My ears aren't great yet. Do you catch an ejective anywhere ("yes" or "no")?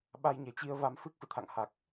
no